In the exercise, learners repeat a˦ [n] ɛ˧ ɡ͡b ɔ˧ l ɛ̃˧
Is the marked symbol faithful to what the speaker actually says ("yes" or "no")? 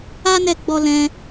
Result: yes